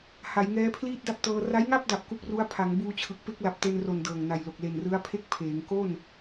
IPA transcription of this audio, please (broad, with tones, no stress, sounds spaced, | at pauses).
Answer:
h a˩˦ j ŋ ɛː˦˥ pʰ l iː˥˩ t̚ d a˥˩ p̚ t ɤː˧ r a˦˥ j ŋ a˥˩ p̚ d a˨˩ p̚ k u˦˥ k̚ r u˦˥ a̯ pʰ a˩˦ ŋ b uː˧ t͡ɕʰ ɯ˨˩ k̚ p e˥˩ k̚ l a˨˩ p̚ t e˧ n r o˨˩ n d ɤː˨˩ ŋ n a˨˩ j l o˨˩ k̚ l e˨˩ n r ɯ˦˥ a̯ pʰ e˥˩ k̚ pʰ eː˩˦ ŋ k o˥˩ n